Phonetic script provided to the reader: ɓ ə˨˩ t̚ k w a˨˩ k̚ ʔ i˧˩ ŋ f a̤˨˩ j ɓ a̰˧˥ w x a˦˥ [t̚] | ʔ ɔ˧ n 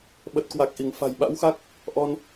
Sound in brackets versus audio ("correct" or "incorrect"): incorrect